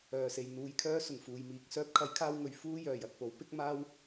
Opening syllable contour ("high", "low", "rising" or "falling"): low